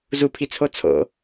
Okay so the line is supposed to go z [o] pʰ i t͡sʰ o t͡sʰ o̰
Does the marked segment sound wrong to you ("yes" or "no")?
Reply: yes